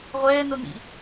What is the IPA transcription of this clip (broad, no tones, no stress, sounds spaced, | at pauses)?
ʁʷ ɛː n o n ḭ